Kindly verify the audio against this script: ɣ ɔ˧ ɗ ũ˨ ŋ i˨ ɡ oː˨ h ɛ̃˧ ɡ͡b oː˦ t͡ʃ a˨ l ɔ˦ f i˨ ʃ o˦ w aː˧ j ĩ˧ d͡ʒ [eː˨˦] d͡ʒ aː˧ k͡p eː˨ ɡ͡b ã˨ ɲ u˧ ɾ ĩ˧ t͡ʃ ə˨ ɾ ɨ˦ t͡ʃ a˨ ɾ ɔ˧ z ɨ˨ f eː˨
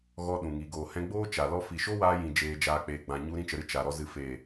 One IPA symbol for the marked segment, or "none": eː˧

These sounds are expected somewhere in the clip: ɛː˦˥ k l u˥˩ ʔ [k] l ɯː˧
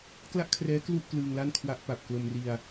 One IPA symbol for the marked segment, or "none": k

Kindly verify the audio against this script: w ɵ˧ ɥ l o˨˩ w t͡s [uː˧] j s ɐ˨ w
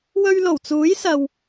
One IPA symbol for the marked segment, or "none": uː˨˥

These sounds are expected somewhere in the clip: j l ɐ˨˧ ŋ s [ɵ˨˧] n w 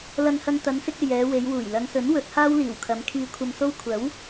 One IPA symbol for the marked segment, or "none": ɵ˨˥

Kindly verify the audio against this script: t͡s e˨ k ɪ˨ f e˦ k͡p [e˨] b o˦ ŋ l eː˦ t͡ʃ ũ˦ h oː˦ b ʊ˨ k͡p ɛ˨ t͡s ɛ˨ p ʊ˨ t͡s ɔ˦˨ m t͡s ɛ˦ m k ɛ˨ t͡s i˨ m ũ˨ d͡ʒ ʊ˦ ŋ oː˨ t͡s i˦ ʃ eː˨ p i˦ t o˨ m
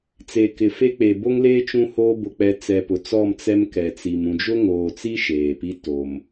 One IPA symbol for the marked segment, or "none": e˨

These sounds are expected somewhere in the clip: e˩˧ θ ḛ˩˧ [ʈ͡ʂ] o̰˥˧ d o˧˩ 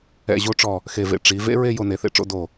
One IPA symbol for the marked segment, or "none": ʈ͡ʂ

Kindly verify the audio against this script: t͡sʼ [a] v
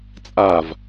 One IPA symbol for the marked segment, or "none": a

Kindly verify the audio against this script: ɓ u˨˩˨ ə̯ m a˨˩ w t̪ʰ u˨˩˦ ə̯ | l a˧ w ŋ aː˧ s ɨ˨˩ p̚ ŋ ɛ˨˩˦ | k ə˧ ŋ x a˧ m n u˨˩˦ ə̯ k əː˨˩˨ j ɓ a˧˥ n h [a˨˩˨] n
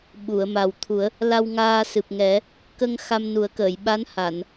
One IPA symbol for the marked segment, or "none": a˨˩˨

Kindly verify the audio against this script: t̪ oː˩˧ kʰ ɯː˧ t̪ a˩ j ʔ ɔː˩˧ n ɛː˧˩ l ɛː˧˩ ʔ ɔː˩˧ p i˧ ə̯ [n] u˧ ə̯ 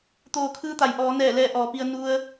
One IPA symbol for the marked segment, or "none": n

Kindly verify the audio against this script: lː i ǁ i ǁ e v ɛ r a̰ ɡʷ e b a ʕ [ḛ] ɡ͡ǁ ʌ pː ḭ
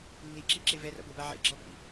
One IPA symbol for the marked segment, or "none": ḛ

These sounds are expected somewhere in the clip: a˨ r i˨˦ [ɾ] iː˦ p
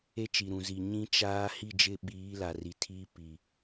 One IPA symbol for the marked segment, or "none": tʰ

